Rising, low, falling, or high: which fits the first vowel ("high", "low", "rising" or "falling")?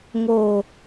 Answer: low